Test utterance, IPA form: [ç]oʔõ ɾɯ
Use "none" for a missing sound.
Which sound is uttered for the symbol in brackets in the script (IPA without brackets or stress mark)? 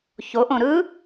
ç